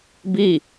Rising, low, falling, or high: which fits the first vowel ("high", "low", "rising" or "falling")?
falling